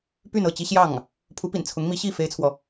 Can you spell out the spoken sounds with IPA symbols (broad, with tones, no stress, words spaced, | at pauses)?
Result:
py˥˧nɤ˥˩t͡ɕi˥ɕjɑ˥˩ŋ | pʰu˧˥pḭ˨˩n t͡sʰʊ˧˥ŋmi˧˥ɕi˥˩ fe˥ɪ̯t͡sʰwɔ˨